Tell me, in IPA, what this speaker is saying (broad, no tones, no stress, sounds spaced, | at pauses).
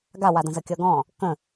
ɡ a w a d ə̃ z ə kʲ ʌ ɡ ɔ̃ | k ə̃